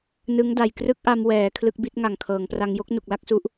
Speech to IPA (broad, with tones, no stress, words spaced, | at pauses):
nɯ˦˥ŋda˨˩jkrɯ˥˩k̚ʔa˧m wɛː˩˦ kʰlɯ˦˥k̚bi˦˥t̚ ŋa˨˩ŋkʰɤː˩˦ŋpra˧ŋ jo˥˩k̚nu˨˩k̚la˥˩k̚su˦˥ʔ